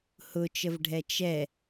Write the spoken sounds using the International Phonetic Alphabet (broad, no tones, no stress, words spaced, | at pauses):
hʊt͡ʃəvɖʱɛ t͡ʃɛ